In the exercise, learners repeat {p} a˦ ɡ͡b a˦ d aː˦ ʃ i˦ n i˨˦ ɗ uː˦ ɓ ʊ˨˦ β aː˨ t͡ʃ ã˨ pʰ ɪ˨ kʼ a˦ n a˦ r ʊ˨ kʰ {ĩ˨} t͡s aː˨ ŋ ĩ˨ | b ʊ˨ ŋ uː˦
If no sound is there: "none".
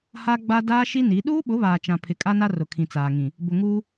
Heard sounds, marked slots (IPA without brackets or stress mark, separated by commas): h, ĩ˨